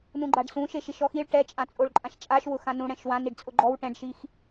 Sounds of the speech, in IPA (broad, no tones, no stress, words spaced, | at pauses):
nũɡ͡ǃaɖsũ ʃeʃiʃɔxiɭ ʈɛt͡ʃʼãt͡sʼoɭ ǃʼãʃt͡ʃʼaʃ wʊxãnũɽɛ̃ʃ wãniɖ t͡sʼʊɡ͡ǃɔw ʈɛ̃ɖʃix